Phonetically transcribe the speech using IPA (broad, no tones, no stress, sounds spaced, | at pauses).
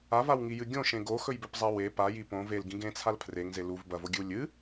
a v a w ŋ i j ɨ ɡʲ õ ʃ ẽ ɡ o x ɵ j b ɵ p zˤ a w e p a j i p õ v e l ɡ ĩ ɡ ẽ t͡sʰ a l pʰ r e ŋ z e l u v b ɐ v o ɡʲ ɨ w lʲ ɨ